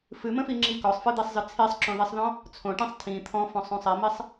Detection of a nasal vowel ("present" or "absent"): present